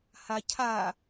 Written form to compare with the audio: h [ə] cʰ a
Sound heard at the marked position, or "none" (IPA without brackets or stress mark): a